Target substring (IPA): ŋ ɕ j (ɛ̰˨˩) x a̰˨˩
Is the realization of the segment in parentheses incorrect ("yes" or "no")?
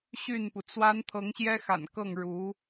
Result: yes